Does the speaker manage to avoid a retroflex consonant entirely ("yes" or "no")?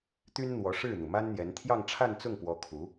no